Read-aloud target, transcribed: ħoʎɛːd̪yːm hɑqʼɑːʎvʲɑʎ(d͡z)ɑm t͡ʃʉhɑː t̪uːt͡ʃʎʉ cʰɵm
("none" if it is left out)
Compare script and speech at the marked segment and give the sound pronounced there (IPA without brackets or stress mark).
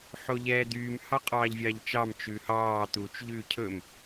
t͡ʃ